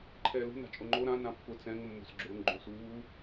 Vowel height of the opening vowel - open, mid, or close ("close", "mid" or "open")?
mid